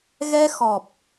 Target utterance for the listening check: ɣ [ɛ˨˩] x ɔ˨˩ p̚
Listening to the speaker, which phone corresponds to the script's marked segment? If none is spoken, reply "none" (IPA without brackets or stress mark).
ɛ˧